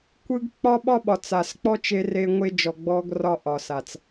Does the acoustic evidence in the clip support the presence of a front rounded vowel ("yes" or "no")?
no